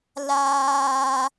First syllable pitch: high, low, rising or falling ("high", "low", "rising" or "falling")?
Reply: high